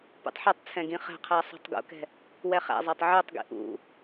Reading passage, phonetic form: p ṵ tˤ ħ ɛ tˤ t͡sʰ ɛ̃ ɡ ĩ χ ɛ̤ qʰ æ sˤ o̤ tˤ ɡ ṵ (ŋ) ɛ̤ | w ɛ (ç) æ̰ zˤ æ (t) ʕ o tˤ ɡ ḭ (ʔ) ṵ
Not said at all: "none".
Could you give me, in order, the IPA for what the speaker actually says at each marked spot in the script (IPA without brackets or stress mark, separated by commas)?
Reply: k, χ, tˤ, ʔ